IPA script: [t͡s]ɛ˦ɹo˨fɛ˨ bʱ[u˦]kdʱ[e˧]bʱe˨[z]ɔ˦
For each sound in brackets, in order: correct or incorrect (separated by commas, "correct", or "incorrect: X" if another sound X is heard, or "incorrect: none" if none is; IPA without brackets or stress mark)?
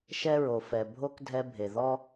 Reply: incorrect: ʃ, incorrect: o˦, incorrect: ɛ˧, incorrect: ð